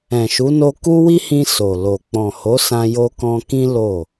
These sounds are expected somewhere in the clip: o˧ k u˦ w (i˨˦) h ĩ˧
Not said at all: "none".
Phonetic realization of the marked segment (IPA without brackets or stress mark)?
i˦